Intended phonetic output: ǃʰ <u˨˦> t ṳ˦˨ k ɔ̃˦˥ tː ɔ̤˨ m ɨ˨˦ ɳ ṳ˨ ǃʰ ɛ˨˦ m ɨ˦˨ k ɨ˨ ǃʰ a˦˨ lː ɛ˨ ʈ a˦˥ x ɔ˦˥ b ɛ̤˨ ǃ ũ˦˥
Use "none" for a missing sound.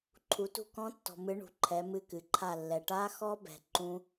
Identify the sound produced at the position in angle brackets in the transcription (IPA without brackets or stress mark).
u˨˦